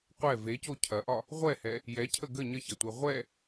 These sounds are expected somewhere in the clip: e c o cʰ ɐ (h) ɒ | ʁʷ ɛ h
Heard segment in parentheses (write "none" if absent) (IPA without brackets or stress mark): ʔ